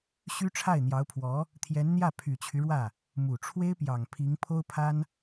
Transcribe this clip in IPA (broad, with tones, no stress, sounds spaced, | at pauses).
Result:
ɕ y˥ ʈ͡ʂʰ a˥˩ ɪ̯ n̪ j ɑ˧˥ ʊ̯ pʰ w ɔ˧˥ | t̪ʰ j ɛ˧˥ n n̪ j ä˥˩ pʰ y˨˩ t͡ɕʰ y˦ ɻ w ä˥˩ | m u˨˩ ʈ͡ʂʰ w e˥ ɪ̯ p j ɑ˨˩ ŋ pʰ i˧˥ ŋ pʰ o˥ ʊ̯ pʰ a˥ n